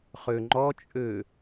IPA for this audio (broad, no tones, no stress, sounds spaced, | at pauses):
χ ø ŋ͡ǃ ɔ t͡ʃʼ ø